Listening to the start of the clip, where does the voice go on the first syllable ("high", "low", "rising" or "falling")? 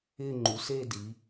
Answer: falling